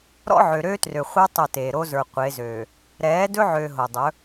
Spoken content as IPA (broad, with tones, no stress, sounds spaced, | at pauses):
ɾ ɔ̰˦ ʕ ø˨ ɾ øː˦ t r ø˨ χʷ ə˞˦ tˤ o˦˨ t eː˨ ɾ o˦ z ə˞˨ qʷ e˨˦ z øː˨ | ɾ ɛː˨˦ d ɵ˦ ʕ øː˨ ɦ o˨ dˤ ɵ˨˦